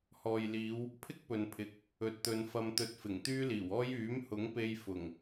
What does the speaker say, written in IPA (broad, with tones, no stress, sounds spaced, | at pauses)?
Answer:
h ɔː˨ j l iː˨˧ w | pʰ ɪ˥ k̚ p ɵ˨ n pʰ ɪ˨ k̚ | ɵ˨ t̚ t̪ ɵ˨˧ n f ɐ˧ m t̪ ɵ˧ t̚ f ɪ˨˩ ŋ t̪ yː˥ l iː˨˩ w ɔː˥ j yː˨˥ m h ʊ˨˥ ŋ p e˧ j f ʊ˨˩ ŋ